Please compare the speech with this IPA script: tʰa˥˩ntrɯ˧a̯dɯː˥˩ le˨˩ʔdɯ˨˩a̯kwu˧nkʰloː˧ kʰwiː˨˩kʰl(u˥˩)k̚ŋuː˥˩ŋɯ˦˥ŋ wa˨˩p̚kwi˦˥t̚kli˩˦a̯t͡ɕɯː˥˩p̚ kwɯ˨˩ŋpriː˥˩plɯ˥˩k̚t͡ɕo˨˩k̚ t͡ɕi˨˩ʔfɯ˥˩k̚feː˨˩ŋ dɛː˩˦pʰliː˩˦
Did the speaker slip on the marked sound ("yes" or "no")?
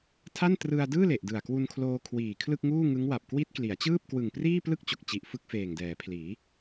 yes